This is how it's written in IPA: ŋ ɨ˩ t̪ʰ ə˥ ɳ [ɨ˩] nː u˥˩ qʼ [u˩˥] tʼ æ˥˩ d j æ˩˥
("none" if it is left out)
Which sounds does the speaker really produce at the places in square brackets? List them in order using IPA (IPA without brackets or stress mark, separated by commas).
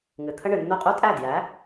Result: ɨ˩, u˥